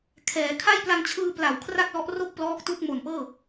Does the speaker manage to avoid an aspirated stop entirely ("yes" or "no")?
no